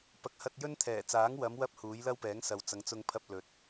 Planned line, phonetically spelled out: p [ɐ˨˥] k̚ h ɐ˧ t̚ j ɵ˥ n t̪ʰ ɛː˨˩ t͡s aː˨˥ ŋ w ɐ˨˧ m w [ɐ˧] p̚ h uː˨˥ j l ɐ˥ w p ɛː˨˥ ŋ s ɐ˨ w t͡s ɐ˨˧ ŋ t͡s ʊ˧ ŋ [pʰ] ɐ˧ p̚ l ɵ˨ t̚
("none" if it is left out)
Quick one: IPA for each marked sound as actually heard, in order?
ɐ˨˥, ɐ˧, pʰ

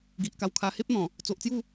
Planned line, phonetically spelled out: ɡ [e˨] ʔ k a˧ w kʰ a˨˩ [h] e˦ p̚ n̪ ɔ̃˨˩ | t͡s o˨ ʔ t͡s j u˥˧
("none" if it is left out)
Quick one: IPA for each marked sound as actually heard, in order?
i˨, h

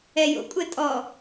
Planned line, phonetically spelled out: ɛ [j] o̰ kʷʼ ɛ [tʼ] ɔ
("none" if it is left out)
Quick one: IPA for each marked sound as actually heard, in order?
j, tʼ

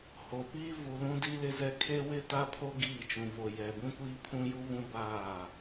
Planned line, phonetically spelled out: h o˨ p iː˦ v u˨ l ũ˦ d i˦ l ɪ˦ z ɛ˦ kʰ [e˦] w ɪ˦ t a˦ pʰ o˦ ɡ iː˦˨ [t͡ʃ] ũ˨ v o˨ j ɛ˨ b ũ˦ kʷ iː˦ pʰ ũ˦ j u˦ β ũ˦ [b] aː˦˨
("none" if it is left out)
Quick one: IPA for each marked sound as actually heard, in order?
e˦, t͡ʃ, b

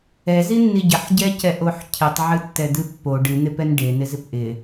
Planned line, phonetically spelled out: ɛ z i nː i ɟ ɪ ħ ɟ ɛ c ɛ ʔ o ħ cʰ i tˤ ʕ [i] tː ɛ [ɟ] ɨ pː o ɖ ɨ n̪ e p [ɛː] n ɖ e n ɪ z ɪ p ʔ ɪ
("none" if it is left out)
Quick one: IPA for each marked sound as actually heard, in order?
ɨ, d̪, ɛ

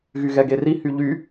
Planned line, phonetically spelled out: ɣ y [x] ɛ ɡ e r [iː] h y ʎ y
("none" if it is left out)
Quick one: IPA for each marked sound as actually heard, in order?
ɣ, i

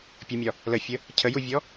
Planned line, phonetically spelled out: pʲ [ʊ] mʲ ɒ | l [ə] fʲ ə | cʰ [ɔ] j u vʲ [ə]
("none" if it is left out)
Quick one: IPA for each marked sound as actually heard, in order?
ə, ə, ə, ɔ

